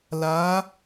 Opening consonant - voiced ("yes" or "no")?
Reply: yes